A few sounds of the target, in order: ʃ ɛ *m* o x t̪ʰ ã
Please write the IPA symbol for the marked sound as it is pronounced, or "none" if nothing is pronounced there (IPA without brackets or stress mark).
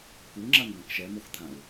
m